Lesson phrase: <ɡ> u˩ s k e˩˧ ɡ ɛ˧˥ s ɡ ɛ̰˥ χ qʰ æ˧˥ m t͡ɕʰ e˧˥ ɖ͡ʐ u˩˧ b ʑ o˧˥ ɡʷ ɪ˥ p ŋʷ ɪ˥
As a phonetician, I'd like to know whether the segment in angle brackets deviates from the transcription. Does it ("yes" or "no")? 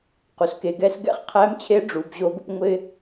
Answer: yes